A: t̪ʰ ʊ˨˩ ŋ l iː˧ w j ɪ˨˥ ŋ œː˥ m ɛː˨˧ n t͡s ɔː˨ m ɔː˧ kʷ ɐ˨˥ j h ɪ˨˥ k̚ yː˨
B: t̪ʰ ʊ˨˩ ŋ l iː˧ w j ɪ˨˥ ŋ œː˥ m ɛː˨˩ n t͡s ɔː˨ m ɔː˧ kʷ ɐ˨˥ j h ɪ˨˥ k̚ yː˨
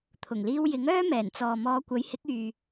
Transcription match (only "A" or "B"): B